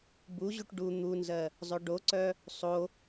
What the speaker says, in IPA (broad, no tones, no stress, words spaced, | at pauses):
buʑuʈ ɖu n̪unzɜ | zˤœɖoǀœ | sˤo